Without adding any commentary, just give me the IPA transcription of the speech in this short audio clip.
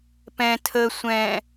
pɛ̃ tʰə sʷɛ̃

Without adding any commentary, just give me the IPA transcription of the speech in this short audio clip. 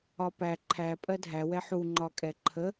ɒpæ ǃʰæ pʼɜdʱæwɛ ħuŋ͡ǃɒ kʼɛǃʰə

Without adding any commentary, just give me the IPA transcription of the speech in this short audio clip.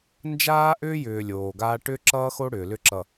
nd͡ʒaː˦ʔʏː˦jʏː˨ lʲoː˨ɡaː˦ ʈʏ˦ǁʌː˦xo˦ ɽʏː˨lʏ˦ǁʌ˨

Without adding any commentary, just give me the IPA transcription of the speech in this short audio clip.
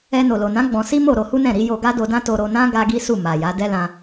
ɛ˧ no˨lo˨nã˨˦ ɡ͡bɔ̃˧ si˦mo˦˨ ɾo˧hu˦nɛ̃˦˨ ɾi˨˦ jo˧ɡa˦do˧dã˦ to˧ɾo˧nã˦ ɡa˦ɡi˦su˦˨ ma˨ja˨˦ dɛ˦lã˧

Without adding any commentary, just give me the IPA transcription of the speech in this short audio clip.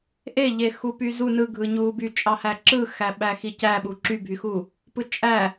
ʔeʎe xupyzu nɯɡʱɯɲuːby t͡ʃʼɑhæǁɯxæ ɓæxicæɓu ǁybʱyxuː | pɯt͡ʃʼæ

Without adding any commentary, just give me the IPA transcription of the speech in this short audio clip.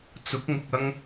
t͡sʊ˨˥k̚ŋʊ˨k̚ ɐ˥ŋ

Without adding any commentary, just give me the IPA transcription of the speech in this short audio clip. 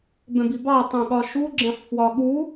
bɛ̃bibɑ tˤɛ̃ɠɒʃuɡ͡ǁɛ̃ħ fwɒɠu

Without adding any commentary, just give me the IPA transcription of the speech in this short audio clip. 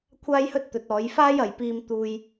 kʷʰaː˧jhɵ˧t̚ t̪ɵ˨˥t̚ɔː˨˥jfaː˥j ɐ˨jpiː˧m t̪uː˧j

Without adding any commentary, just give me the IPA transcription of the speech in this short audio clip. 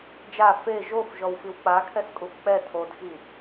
d͡ʒa fe ʒofʒɔwfiw k͡pakʰɛskʼuf k͡pɛ tʰodxi

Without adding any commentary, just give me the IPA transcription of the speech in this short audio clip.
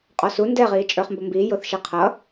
qʼɔsu ndɛʁiː t͡ʃʼə˞χmbʊmbiː jʊθ ʃɛqʰʌ

